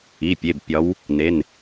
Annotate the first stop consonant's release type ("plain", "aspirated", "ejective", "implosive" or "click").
plain